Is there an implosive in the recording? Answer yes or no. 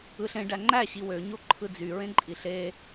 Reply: no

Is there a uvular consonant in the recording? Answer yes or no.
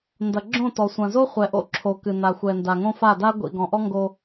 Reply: yes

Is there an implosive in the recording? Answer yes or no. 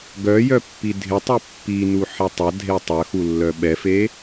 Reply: yes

